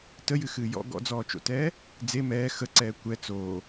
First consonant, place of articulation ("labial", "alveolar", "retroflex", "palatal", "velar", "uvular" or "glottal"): alveolar